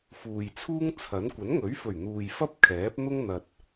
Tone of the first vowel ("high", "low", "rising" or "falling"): low